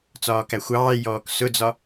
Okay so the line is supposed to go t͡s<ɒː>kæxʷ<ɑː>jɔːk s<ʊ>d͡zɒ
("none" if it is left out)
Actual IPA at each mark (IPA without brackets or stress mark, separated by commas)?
ɒː, ɑː, ʊ